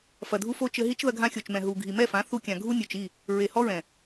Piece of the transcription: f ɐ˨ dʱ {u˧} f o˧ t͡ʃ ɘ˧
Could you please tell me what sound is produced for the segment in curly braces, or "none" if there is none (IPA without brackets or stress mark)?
u˧